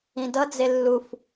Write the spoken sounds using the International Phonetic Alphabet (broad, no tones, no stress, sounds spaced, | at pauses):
ĩ d ʌ d͡z e lː u f